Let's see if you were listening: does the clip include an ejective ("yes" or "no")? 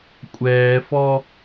yes